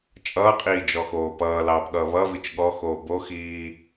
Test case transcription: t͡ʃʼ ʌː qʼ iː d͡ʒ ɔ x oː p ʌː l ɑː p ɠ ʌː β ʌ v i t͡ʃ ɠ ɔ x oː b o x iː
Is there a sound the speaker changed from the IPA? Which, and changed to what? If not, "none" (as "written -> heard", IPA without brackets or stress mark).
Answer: none